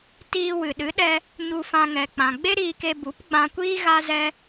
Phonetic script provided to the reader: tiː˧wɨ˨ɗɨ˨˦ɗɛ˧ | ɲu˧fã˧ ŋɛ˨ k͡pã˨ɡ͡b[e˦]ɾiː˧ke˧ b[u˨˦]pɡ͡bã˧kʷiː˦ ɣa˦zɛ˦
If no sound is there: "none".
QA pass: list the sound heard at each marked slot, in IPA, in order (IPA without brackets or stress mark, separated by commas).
e˦, u˨˦